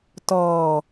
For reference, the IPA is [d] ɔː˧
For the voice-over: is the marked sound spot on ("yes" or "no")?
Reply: no